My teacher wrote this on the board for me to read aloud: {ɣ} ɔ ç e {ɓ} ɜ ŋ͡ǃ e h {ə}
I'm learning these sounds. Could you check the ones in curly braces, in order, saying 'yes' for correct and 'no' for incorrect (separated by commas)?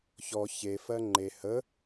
no, no, yes